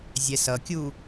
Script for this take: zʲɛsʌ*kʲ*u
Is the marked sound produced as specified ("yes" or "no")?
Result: yes